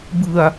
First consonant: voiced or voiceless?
voiced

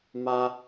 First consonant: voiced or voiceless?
voiced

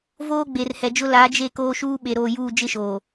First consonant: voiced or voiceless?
voiced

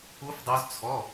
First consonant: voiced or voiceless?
voiceless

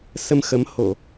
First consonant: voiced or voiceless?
voiceless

